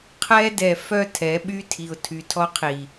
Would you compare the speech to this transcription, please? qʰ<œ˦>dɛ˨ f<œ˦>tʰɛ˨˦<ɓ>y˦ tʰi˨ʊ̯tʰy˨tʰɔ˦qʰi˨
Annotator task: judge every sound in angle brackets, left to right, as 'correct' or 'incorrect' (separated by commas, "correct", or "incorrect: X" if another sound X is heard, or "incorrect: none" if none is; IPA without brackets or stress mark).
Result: incorrect: ɛ˦, correct, correct